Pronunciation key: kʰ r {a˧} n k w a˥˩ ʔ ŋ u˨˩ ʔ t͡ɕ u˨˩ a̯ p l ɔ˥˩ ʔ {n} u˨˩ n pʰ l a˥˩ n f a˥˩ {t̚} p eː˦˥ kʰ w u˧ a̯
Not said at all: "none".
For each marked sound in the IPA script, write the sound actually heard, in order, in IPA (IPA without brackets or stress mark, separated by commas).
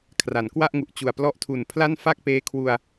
a˩˦, tʰ, k̚